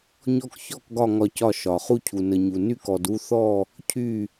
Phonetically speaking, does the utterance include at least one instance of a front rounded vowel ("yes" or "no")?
yes